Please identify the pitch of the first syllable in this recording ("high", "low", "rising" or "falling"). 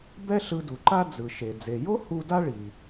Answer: high